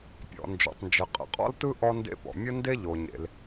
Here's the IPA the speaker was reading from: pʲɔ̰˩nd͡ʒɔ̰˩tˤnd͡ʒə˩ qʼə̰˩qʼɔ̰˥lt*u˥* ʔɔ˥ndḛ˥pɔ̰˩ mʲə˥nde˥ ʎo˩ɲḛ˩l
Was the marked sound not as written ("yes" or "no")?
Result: yes